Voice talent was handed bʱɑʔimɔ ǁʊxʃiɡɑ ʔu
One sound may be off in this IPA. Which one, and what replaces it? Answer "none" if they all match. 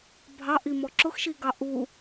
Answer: none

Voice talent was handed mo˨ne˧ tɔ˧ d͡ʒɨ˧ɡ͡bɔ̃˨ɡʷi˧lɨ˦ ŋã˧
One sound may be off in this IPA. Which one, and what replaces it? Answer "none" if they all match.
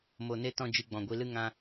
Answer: ɔ˧ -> ɔ̃˧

